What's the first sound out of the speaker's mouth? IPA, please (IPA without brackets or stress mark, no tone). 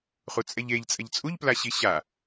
χ